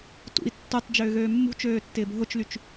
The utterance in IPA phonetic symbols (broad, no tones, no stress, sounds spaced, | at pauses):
t ṵ i̯ tː u tˤ d͡ʒ ʏː ɣ øː mː ṳ t͡ʃ øː tː ɪː b ɦ ʊ t͡ʃ l y t͡ʃ